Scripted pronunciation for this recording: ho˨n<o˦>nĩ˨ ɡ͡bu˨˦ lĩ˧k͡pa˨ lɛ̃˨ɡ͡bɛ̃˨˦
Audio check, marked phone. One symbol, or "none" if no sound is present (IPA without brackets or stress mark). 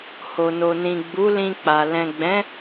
o˨